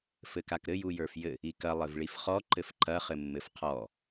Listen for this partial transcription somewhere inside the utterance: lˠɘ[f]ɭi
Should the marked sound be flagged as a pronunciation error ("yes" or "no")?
yes